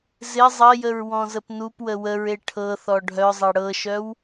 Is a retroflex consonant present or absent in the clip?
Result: present